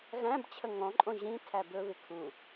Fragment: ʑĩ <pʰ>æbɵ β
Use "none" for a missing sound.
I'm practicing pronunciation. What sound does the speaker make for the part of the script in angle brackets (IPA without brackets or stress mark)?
tʰ